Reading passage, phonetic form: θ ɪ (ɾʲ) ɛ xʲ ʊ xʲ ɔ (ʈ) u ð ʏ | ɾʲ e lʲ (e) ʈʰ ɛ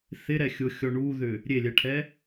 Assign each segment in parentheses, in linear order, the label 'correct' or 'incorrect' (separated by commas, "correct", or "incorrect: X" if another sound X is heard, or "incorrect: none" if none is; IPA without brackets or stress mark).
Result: incorrect: ɾ, incorrect: ɳ, incorrect: ɛ